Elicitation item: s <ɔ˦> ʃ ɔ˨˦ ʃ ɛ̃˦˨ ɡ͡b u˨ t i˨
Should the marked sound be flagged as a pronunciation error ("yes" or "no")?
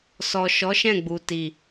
yes